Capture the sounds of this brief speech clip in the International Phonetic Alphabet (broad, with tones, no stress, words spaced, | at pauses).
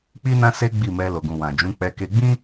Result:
k͡pi˦nã˦se˦ ɡ͡bi˦˨mɛ˧ lo˨ɡũ˨ wã˨d͡ʒũ˨˦ k͡pɛ˧ke˧ɡ͡bĩ˦